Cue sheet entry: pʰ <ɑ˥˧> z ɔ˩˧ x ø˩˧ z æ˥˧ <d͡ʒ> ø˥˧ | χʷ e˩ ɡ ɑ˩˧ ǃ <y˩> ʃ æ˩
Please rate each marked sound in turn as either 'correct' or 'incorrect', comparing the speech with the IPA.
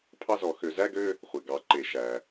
correct, incorrect, incorrect

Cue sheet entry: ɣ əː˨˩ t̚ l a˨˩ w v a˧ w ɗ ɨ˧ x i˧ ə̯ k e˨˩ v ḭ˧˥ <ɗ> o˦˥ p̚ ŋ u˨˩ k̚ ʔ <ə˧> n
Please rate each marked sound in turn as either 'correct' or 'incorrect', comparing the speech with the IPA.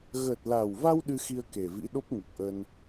correct, correct

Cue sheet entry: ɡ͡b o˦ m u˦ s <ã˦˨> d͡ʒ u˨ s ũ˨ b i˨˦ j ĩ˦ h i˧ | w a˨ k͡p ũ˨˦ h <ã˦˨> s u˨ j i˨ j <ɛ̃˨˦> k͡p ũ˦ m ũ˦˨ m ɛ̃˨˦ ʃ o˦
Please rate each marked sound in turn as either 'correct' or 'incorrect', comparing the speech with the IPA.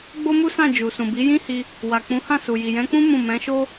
correct, correct, correct

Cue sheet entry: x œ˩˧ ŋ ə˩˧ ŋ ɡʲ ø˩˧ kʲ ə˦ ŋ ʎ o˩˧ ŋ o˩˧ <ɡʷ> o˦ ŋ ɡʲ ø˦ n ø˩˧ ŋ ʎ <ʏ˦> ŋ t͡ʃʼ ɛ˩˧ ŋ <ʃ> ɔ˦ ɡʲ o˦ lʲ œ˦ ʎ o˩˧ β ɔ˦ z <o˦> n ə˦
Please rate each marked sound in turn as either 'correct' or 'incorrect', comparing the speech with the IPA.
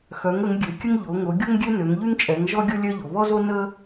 incorrect, incorrect, incorrect, correct

